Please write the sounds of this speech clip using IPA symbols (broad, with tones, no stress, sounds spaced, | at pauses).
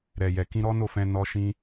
ɾ ɛ˨ j ɛ˨ k ĩ˧ ɾ ɔ˦ n o˦˨ f ɛ̃˧ n ɔ˦ ʃ ĩ˧